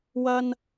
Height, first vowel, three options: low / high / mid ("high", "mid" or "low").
low